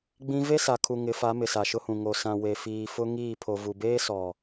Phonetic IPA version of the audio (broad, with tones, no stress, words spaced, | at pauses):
ɡ͡bĩ˦ ve˦sa˨kʰu˨ ŋɪ˨˦fa˨˦mɪ˨ sa˨ʃʊ˦hũ˨ ŋo˨sã˨ we˨fiː˨fʊ˦ ŋiː˦˨pʰo˨ vu˨ beː˦sɔ˨